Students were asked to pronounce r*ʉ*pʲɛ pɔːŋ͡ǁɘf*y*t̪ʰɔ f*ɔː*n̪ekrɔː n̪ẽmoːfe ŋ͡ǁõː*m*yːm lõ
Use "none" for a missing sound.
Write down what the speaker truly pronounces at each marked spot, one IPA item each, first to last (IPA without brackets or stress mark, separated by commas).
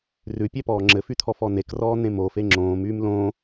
ʉ, y, ɔ, m